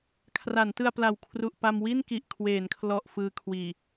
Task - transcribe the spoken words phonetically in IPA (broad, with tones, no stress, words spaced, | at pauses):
kʰra˩˦ntɯ˧a̯ pla˨˩wkʰru˨˩ʔpa˧m wi˥˩nki˨˩ʔkʰweː˩˦nkʰlɔ˨˩ʔ fɯː˧kʰwiː˨˩